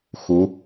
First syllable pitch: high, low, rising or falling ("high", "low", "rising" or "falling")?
rising